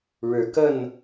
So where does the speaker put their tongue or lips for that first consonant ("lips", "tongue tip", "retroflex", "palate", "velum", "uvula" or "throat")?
retroflex